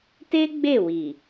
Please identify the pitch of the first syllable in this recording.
high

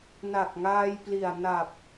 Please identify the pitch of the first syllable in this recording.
low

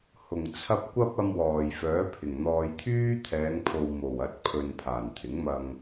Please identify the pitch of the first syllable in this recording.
low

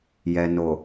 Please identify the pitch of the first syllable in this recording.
low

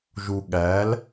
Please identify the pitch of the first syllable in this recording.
low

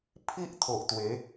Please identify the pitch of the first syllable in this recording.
high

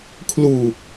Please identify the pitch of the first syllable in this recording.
low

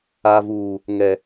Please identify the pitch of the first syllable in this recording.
low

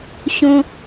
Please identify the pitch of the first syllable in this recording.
high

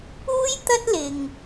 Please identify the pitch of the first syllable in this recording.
high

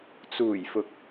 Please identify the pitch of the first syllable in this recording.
low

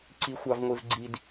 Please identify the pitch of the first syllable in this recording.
low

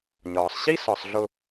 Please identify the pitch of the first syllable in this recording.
low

